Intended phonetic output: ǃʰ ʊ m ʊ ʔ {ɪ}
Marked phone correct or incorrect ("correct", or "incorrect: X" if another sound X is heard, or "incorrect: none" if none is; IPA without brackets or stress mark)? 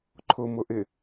correct